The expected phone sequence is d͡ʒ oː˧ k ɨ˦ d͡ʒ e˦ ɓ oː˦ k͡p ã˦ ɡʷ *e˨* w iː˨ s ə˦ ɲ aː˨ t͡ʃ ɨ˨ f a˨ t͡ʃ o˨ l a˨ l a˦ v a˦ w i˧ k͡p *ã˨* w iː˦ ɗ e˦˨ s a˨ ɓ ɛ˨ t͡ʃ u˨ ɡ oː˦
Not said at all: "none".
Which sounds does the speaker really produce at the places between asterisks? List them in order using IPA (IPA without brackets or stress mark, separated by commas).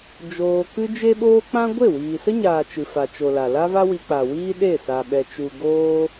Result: e˦˨, a˨